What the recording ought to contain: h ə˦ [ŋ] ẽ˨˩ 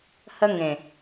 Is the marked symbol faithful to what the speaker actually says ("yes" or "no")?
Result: yes